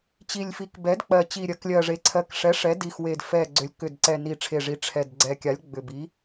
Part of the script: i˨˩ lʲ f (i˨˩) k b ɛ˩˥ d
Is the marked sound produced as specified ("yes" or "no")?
no